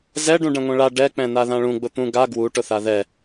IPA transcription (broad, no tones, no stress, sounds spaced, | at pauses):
z ɛ ɖ ũ ɖ ɛ̃ ŋʷ ɛ̃ ɭ a ɖ ɛ k͡p ɛ̃ n a ð ã ɭ ũ ɡ͡b ʊ t̪ ũ ɡ a ɡ w u ʈ ʊ θ a ð ɛ